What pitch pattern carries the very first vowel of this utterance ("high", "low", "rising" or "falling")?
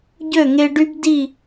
falling